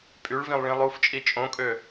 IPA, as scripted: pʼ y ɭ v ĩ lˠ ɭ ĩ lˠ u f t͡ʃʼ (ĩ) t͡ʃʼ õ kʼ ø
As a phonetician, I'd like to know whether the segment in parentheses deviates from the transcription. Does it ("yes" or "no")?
yes